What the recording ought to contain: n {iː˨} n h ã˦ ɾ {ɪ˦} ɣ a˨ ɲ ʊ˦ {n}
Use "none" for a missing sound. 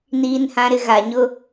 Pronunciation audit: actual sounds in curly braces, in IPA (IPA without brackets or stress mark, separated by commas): iː˦, ɪ˦, none